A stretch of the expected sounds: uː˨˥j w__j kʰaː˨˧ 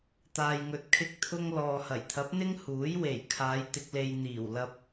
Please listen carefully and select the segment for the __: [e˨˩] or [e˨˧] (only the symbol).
e˨˩